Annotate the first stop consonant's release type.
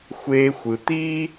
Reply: plain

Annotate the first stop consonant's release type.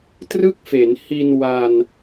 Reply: plain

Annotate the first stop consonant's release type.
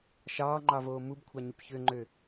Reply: click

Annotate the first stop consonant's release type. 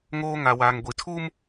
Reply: plain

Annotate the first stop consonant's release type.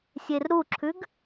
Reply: click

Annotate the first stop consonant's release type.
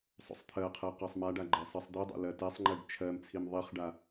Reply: aspirated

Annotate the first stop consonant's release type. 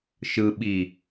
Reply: implosive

